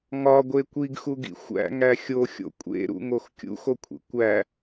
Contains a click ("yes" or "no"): no